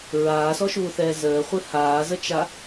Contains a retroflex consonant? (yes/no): no